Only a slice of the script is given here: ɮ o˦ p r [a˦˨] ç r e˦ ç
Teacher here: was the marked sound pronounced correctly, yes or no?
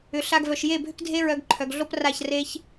yes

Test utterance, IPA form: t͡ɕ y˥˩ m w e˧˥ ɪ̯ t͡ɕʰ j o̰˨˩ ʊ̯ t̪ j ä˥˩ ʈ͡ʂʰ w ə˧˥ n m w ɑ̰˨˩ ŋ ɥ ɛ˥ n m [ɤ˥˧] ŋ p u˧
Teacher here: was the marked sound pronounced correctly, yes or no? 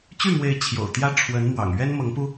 no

